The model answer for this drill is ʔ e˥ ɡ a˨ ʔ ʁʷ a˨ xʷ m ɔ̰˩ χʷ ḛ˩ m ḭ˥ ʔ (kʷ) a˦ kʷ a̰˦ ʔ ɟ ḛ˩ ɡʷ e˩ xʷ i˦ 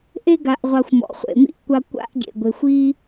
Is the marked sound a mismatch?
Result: no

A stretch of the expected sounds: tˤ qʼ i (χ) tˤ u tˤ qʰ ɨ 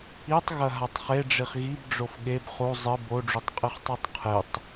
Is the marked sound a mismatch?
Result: no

